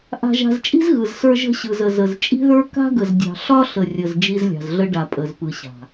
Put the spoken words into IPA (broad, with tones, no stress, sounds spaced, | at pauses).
ʔ a̤˨ ʒ a̤˨ z t͡ʃʼ i̤˦ z ɣ ɯ˨ z s ə˞˦ ʒ ə̤˦ ɕ ɯ˨ z ə˨ z ə˨ z t͡ʃʼ i̤˦ ð ə˞˦ k a̤˦ ɡ ə˨ z dʲ ɑ̤˨ ɬ ɒ˦ ɬ ə˨ rʲ ə˨ z d͡ʒ i˦ z lʲ ɑ̤˨ z ɮ ə˦ ɖ a˨ pʼ ə˨ z p ɯ˨ ɕ a̤˨